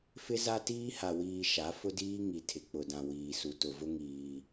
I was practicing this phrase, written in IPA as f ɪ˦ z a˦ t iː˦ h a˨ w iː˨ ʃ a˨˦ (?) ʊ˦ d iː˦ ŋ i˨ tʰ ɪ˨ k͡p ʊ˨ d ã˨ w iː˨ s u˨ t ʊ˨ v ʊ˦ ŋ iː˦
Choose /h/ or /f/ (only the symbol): f